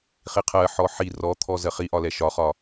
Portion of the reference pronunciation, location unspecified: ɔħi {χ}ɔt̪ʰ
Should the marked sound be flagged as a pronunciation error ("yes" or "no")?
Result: yes